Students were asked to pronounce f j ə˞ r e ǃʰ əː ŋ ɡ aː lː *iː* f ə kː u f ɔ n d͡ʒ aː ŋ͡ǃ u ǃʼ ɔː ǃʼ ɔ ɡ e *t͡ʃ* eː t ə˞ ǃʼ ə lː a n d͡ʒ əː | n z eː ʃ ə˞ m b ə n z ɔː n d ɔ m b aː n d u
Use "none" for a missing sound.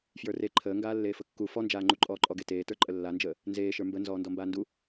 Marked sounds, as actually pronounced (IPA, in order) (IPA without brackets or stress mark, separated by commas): eː, t